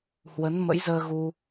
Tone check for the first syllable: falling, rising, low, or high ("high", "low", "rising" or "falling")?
rising